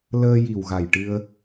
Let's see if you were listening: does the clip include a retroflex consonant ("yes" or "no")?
yes